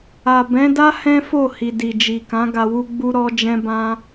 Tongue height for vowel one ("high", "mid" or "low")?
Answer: low